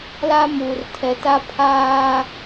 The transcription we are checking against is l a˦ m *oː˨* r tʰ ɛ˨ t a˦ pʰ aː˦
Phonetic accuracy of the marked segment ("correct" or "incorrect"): incorrect